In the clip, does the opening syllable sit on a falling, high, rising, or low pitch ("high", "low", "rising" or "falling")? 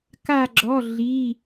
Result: falling